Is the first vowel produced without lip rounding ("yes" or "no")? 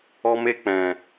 no